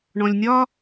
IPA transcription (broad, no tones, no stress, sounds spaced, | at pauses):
ɳ ɔ̃ lʲ nʲ ɒ